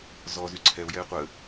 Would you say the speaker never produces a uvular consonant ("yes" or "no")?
no